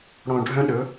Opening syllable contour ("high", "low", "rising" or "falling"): low